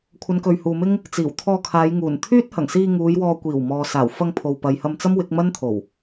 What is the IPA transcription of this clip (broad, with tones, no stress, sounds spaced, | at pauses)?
kʷʰ ɐ˨˧ n k ɵ˨ ɥ h uː˨ m ɪ˥ ŋ | t͡s iː˨˩ w t̪ʰ ɔː˧ kʰ aː˨˧ j ŋ uː˨˩ n t̪ʰ yː˥ t̚ h ɐ˨˩ ŋ s iː˧ ŋ uː˨˧ j w ɔː˧ kʷ iː˨˩ w m ɔː˨ s aː˨˩ w f ɐ˧ ŋ pʰ o˨ w p ɐ˨ j h ɐ˧ m t͡s ɐ˥ m w ɪ˨˥ k̚ m ɐ˥ n t̪ʰ o˨˩ w